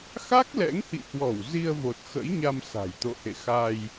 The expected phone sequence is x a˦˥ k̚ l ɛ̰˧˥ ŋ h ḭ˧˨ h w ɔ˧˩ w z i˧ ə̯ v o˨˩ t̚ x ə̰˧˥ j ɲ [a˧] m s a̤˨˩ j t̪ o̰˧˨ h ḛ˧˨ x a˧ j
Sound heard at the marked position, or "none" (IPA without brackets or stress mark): a˧